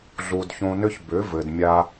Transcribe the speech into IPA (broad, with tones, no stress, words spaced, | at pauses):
ɮu˨dçõ˧nʏ˦ç bʏ˨˦vɘ˨d mʲa˧